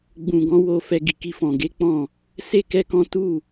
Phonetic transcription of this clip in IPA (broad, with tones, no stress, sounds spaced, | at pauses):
ɡ͡b ũ˨ ɡ ɔ̃˨˦ w o˧ f ɛ˧ ɡ i˨ k i˧ f ɔ̃˨ ɡ e˨˦ k͡p ɔ̃˦˨ | s e˦ k ɛ˦ k ɔ̃˦ t u˦˨